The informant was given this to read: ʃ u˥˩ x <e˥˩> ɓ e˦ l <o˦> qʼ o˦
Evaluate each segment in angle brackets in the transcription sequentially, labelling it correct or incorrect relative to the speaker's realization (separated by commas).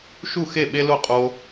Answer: correct, incorrect